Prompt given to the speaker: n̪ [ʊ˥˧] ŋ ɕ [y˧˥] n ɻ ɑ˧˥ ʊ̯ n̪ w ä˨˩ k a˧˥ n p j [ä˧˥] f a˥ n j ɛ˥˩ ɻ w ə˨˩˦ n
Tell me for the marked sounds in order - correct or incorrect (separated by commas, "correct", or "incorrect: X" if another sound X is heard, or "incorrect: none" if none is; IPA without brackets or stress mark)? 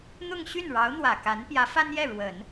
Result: correct, incorrect: y˥˩, correct